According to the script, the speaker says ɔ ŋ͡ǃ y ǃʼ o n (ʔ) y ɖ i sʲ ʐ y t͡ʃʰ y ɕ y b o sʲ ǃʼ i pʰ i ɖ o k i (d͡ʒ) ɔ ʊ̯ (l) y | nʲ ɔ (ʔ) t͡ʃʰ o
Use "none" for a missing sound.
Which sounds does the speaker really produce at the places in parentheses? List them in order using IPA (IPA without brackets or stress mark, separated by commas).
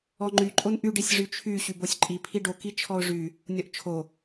ʔ, t͡ʃʰ, ʐ, ʔ